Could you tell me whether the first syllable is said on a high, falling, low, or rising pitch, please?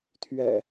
low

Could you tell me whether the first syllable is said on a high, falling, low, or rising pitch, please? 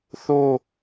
falling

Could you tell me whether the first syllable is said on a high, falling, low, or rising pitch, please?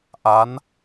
rising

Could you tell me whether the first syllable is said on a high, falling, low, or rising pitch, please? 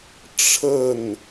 falling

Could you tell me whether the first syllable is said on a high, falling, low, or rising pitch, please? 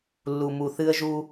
low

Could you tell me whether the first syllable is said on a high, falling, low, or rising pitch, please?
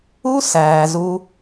high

